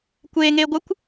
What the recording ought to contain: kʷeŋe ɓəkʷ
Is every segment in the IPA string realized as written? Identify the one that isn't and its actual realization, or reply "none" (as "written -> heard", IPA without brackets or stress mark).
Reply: ɓ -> ɡʷ